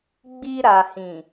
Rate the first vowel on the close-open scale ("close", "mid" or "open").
close